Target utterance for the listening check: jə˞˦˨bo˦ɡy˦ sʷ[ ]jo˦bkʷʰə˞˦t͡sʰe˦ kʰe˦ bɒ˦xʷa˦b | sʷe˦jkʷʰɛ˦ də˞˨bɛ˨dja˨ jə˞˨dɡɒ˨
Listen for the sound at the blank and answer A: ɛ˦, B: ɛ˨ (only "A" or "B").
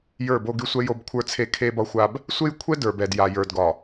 A